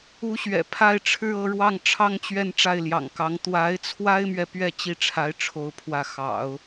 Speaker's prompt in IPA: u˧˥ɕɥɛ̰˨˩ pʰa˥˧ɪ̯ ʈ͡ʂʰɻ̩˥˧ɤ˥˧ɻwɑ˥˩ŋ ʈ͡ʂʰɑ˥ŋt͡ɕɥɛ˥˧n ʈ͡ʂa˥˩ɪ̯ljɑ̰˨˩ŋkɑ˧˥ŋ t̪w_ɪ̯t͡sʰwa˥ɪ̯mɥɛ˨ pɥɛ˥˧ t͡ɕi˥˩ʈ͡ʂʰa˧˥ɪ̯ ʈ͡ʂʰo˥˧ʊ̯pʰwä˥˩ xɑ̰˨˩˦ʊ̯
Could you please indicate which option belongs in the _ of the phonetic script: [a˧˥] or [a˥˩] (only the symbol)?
a˧˥